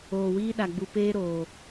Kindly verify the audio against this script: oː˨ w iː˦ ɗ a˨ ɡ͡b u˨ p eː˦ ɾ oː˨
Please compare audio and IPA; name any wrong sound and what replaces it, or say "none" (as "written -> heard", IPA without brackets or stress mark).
none